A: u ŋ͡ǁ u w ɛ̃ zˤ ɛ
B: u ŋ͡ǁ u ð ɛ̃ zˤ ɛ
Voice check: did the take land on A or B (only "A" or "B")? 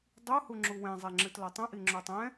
A